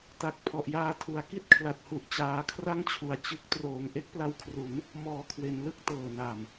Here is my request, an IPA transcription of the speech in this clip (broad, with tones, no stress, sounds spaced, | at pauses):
t a˨˩ k̚ pʰ ɔ˨˩ ʔ j aː˧ tʰ u˩˦ a̯ k i˥˩ t̚ kʰ l a˨˩ t̚ h u˨˩ ʔ t͡ɕ aː˧ kʰ r a˥˩ ŋ t͡ɕʰ u˨˩ a̯ t͡ɕ ɯ˦˥ k̚ t r oː˩˦ ŋ ʔ e˦˥ k̚ p l a˧ w kʰ r u˩˦ n | m ɔː˨˩ kʰ w e˩˦ n l ɯ˥˩ k̚ t ɤː˨˩ n a˨˩ m